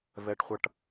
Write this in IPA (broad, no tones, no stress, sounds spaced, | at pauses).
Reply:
v ɛ ʈ χʷ ʌ ʈ